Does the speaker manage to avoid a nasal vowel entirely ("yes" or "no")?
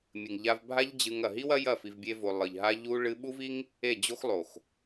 yes